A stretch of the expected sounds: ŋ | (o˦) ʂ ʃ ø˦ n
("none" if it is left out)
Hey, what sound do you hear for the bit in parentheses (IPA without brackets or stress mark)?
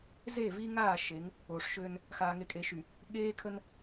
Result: o˨